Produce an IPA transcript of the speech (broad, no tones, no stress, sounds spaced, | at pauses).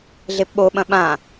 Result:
ɮ e p ɓ o ɓ ɐ̃ ɓ ã